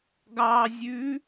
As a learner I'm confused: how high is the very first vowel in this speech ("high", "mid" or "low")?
low